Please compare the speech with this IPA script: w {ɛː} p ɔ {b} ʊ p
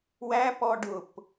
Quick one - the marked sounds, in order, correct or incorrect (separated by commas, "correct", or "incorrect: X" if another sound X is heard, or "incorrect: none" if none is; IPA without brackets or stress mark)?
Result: incorrect: æː, incorrect: ɖ